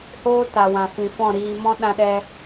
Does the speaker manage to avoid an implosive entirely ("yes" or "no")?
no